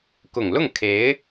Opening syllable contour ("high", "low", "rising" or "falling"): low